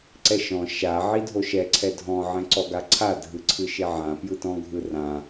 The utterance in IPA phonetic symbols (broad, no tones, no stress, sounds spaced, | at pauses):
ǀ ɛ ʃ ɔ̃ ʃ a ʕ i dʱ o ʃ ɛ ǀʰ ɛ dʱ ɔ̃ ʕ ɛ̃ ǀ ɔ ɡ a ǀʰ a dʱ ɯ ǀʰ ɯ ʃ e ʕ ã p j ɯ t ɔ̃ ɡʱ ɯ r ã